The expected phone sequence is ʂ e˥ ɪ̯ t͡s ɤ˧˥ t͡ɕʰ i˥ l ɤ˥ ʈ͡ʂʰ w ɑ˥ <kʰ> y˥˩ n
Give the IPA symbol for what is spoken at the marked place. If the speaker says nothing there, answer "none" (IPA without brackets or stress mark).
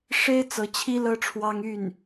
ŋ